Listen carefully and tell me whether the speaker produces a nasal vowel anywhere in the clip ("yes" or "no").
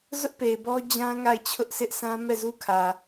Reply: yes